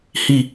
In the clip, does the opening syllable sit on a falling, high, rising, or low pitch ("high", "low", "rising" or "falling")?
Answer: falling